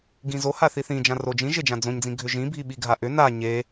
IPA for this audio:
ɡ ĩ z o h a θ i θ ĩ d͡ʒ ã r o d͡ʒ ĩ ʒ e d͡ʒ ã d͡z õ ɲ d͡z ĩ ɡʱ ʏ ʒ ĩ bʱ i ɓ i ɡʱ a ʔ ʏ n a ɲ e

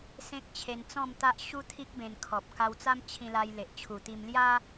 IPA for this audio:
s ẽ˦ k̚ t͡ɕʰ e˧ n t͡s ɔ̃˥˧ m t̪ a˦ ʔ ɕ u˦ t̪ʰ i˦ k̚ b ẽ˧ n kʰ ɔ˨ p̚ k a˧ w t͡s a˦ m t͡ɕʰ ĩ˧ l a˧ j l e˨ ʔ t͡ɕʰ u˨˩ t̪ i˧ m l j a˦

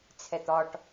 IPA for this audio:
t͡sʰ ɛ t̪ ɒ ʈ

